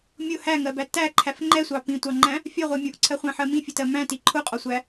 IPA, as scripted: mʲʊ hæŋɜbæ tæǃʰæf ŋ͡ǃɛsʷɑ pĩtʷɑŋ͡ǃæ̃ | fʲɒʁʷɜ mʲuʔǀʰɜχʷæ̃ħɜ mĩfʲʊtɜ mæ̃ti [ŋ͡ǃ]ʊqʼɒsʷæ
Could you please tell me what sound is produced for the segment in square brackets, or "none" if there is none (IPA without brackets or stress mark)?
ǃʰ